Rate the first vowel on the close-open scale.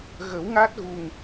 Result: mid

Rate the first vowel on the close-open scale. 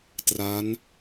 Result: open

